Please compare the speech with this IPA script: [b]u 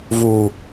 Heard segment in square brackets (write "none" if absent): v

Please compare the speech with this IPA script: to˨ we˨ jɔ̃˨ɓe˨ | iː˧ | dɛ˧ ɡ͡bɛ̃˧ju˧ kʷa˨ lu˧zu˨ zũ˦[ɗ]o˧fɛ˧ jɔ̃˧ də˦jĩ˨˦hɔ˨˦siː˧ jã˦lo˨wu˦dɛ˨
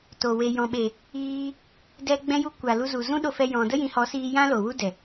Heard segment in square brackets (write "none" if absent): ɗ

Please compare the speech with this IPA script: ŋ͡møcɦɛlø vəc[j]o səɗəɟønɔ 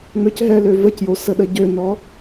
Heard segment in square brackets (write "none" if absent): j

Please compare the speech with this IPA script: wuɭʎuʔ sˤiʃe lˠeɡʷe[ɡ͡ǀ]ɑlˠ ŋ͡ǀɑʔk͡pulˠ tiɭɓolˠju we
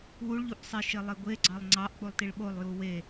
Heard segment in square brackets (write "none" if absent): ɡ͡ǀ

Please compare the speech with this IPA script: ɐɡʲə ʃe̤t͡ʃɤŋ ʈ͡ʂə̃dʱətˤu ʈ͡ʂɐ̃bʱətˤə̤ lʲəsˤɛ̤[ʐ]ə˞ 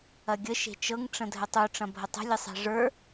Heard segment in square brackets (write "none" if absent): ʐ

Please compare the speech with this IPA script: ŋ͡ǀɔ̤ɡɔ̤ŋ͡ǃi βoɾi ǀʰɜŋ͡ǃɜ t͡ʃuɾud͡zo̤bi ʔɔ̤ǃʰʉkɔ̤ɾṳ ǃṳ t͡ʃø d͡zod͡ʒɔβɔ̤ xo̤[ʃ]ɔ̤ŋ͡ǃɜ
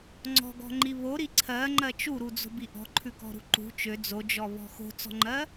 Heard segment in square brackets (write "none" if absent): t͡s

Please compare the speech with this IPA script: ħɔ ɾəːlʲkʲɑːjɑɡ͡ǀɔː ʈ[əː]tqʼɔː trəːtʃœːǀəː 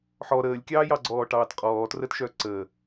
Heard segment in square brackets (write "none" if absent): ɑː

